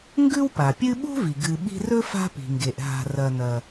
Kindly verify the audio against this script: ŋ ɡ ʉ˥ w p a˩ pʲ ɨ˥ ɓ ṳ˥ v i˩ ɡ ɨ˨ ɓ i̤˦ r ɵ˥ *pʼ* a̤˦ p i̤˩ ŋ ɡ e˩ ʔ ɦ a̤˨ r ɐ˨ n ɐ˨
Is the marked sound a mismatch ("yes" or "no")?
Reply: yes